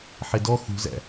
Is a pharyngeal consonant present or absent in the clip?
present